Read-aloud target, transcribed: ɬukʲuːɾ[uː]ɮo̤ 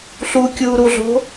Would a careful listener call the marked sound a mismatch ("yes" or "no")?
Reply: yes